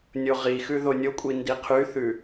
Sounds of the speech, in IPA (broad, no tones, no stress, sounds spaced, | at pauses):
nʲ o ʁ i x ʉ ð o nʲ o kʷʼ i n d i qʰ y θ ʉ